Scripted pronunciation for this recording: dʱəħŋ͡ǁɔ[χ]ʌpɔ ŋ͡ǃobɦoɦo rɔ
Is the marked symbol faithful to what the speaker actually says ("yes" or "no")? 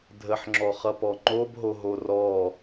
yes